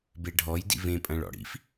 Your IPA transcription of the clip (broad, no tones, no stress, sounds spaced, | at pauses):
b e ɖʱ ɔ j d ḭ v ẽ pʼ ɐ̃ ɭ ɔ̰ ɽ ḭ f